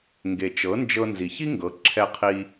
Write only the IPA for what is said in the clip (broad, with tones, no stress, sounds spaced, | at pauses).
ŋ ɡ e˨ t͡ʃ ɤ˨˦ n d͡ʒ ɤ˧ n z i˨ ç i˦ ŋ ɡ ɤ˨˦ ǁʰ ɛ˧ qʰ i˧